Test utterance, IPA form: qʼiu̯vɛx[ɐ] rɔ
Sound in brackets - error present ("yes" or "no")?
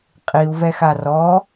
yes